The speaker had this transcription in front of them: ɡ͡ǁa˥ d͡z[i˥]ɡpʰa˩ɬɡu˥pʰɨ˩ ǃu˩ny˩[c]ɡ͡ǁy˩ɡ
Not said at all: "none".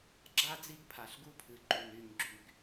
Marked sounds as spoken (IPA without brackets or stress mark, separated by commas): i˥, ɲ